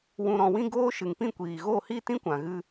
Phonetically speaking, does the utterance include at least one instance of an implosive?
no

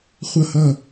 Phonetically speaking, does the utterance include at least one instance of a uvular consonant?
yes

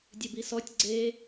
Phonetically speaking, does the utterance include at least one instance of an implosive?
no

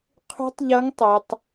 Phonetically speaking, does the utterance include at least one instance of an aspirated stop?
yes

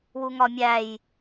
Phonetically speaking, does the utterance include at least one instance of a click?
no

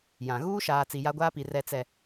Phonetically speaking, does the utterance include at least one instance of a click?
no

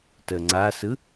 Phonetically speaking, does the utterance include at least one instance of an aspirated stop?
no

